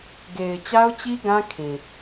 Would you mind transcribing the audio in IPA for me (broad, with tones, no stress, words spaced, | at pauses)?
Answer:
ɡe˨ɪ̯t͡ɕa˦ʊ̯t͡ɕi˦ ɡã˦ kʰĩ˨